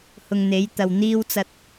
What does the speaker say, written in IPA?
h ʊ˨ ŋ n̪ e˨˥ j t̪ ɐ˨ w n̪ iː˥ w t͡s ɐ˧ t̚

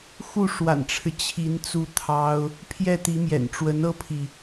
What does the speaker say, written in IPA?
x u˥˩ ʂ w a̰˨˩ n ʈ͡ʂʰ ɻ̩˦ t͡ɕʰ i˧˥ n t͡s u˥˩ t̪ʰ ɑ˥ ʊ̯ | pʰ j ɛ˥˩ t̪ i˧˥ m j ɛ̰˨˩ n ʈ͡ʂ w ə˧˥ n ɤ˥ pʰ i˨

